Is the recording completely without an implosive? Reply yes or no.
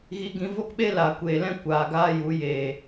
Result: no